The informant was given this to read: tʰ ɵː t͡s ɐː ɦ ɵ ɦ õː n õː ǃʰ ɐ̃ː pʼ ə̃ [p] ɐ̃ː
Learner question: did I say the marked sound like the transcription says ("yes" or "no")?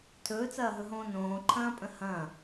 no